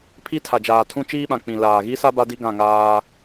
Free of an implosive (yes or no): no